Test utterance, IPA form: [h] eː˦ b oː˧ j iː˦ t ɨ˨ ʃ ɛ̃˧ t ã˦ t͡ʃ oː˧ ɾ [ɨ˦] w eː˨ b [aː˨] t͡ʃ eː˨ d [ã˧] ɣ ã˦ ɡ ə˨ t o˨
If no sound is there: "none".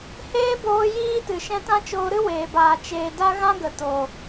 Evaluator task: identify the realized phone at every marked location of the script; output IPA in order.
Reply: h, ɨ˦, aː˨, a˧

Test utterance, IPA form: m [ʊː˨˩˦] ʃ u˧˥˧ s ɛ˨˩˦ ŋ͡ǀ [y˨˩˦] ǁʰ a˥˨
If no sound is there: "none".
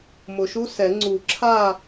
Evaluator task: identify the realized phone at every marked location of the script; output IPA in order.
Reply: ʊ˨˩˦, u˨˩˦

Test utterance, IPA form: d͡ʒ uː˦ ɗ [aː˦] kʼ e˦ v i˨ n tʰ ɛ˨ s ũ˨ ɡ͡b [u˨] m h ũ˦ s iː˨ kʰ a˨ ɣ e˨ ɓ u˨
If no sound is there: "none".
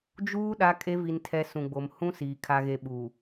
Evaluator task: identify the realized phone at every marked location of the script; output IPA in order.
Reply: a˦, o˨

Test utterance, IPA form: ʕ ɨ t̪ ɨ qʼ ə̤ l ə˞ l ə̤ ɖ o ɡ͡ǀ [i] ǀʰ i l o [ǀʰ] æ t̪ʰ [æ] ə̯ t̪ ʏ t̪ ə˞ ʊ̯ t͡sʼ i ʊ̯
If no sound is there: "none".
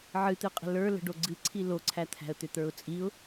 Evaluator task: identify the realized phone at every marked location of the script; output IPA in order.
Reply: ɨ, ǀʰ, æ̤

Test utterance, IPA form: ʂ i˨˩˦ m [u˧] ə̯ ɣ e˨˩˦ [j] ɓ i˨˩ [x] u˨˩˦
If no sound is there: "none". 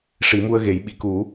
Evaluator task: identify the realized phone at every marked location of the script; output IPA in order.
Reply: u˧, j, k

